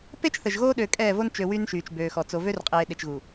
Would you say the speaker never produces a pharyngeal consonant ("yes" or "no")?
yes